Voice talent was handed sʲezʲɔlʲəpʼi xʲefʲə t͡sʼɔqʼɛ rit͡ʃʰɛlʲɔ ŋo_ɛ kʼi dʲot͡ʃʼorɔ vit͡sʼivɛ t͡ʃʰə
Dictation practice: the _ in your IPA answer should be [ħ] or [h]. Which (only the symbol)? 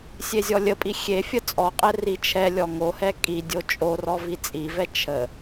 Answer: h